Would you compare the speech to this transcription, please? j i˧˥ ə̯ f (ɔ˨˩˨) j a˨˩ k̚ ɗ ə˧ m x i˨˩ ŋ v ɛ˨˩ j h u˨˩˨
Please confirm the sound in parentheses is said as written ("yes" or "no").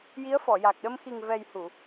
yes